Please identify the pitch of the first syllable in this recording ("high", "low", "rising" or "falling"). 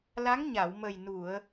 rising